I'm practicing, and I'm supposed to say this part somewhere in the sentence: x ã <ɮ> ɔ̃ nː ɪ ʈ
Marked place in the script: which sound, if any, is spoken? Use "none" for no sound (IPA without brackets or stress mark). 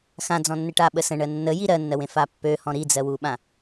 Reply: d͡z